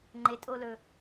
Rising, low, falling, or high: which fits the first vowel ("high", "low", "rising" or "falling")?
low